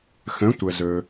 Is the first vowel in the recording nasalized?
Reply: yes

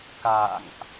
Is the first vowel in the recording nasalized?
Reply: no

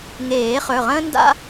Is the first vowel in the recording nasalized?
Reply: no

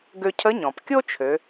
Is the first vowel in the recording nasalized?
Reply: no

